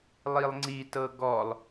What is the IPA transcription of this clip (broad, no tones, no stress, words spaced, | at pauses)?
lˠilˠŋ͡ǀi tɤɡɔlˠ